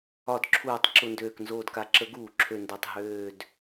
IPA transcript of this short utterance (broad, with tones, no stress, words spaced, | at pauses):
ɒ˨˩˦dǁʰuː˨˩˦tˤ ǁʊ˨˩ndøː˨˩k nzoː˨˩dka˨˩ǁə˨˩˦ ɡuː˨˩˦ǁʰø˨˩ndø˨˩tˤ ɦøː˨˩d